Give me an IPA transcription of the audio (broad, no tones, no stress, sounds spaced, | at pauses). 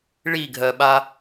ɭ i ɡʱ ɜ ɓ a